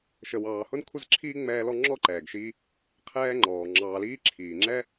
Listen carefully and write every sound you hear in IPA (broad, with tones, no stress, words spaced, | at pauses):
ʃə˨wɑː˨hʊ˥n kʷʰə˥zǁʰiː˥ŋ͡mɛː˦lɔ˦ ŋ͡ǁɔ˥ǃɛː˩ɡʃiː˦ | qʰɛː˦ŋ͡ǃɔː˩ ŋ͡ǁɑː˨liː˦ǁʰiː˩ ŋ͡ǁɛ˦